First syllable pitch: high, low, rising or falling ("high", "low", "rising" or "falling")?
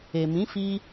low